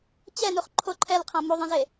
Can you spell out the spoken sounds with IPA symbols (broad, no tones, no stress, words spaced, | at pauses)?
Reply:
t͡ɕɛnuχ ǃʰo ǃʰɛlqʰã muðˤɛ̃ze